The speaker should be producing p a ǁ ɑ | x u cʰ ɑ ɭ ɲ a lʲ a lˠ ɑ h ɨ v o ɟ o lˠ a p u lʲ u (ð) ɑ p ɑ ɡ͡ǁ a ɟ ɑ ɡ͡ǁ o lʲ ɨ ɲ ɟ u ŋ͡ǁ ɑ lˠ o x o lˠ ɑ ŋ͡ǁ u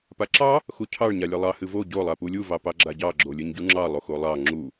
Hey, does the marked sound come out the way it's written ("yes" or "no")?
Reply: no